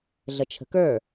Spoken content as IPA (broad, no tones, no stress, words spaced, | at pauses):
ɮət͡ʃʰə̤kə˞